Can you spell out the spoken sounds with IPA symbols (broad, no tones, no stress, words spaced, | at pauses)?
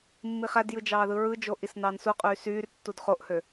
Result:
mːiχædjɯ d͡ʒɑːðɯɹɯd͡ʒo ʔisnɑːnsuqʼyː syːr tːudχoʔhø